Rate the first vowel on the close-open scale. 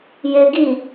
mid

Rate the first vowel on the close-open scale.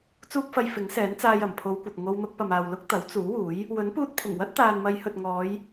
close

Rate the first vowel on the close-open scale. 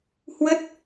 mid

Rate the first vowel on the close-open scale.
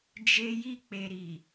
mid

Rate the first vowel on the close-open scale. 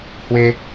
mid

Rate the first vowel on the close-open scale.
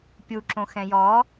close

